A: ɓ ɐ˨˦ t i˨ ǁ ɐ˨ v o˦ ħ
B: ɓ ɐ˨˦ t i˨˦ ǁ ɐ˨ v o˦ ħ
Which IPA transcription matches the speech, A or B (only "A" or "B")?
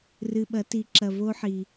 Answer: B